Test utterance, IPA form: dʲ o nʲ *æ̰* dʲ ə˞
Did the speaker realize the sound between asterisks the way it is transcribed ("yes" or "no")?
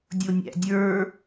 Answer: yes